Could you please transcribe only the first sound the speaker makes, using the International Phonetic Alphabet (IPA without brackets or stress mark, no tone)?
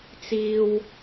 t͡s